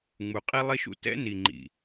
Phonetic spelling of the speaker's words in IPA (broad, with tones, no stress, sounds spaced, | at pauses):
ŋ͡m u˨ qʼ i˦ lˠ i˦ ʃ ṵ˦ t ɛ̰˦ n i˨ ŋ͡ǃ ḭ˨